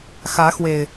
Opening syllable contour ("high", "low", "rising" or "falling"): rising